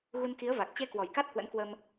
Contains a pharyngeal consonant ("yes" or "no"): no